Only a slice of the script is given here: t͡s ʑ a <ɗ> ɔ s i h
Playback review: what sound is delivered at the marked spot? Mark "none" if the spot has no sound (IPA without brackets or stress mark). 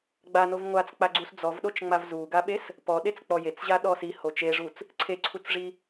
ɗ